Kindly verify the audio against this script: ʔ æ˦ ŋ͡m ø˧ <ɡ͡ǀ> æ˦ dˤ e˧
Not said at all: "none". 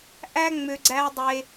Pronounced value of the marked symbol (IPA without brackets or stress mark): ɡ͡ǀ